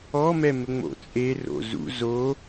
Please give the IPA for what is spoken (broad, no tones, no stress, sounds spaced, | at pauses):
ɔ m ɛ m ɘ ŋ͡m o̰ t͡sʼ e r o̰ z ṵ z o